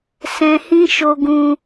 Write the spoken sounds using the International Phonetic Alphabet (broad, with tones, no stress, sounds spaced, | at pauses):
s ɛ̃˧ h ĩ˦ ʃ o˧ ɡ ũ˧